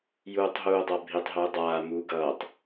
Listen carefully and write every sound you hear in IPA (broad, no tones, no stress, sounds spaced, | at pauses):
j uː tˤ ɦ uː dˤ a bʱ i tˤ ɦ ɯː dˤ aː m uː ɡ ʌː tˤ